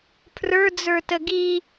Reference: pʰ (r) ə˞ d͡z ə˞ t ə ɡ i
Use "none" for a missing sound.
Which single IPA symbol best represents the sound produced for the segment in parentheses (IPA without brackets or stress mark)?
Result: r